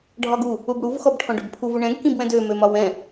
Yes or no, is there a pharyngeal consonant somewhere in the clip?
no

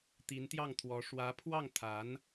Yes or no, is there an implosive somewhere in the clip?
no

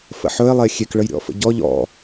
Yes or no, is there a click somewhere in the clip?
no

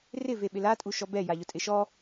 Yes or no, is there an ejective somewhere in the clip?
yes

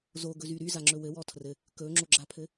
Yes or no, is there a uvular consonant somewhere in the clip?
no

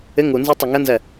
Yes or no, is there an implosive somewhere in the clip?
no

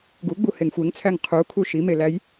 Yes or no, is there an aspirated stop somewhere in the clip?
yes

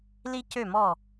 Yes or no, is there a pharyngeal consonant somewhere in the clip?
no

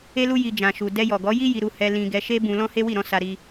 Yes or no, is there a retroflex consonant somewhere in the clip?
no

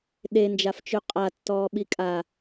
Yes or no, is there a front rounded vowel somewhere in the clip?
no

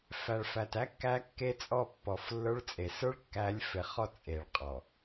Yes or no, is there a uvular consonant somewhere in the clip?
yes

